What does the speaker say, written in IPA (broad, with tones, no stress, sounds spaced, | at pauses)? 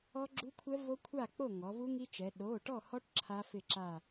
ɔ˦˥ ɡ͡ǁ u˦˥ kʷʰ ɛ˦˥ v o˦˥ kʷʰ a˥˨ k͡p o˥˨ ŋ ɔ˩˧ v u˦˥ ŋ i˦˥ t͡ʃ ɛ˩˧ ɗ o˩˧˩ ʈ ɔ˥˨ h ɔ˦˥ ʈ ǁʰ a˦˥ f ɪ˥˨ ǁ a˥˨